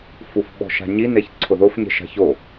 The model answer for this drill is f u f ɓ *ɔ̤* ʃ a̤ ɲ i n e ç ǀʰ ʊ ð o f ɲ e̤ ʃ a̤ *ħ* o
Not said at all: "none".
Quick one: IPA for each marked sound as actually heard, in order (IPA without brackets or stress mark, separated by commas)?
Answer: ɔ̤, ç